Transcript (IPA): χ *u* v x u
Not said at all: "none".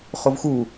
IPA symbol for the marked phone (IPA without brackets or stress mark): o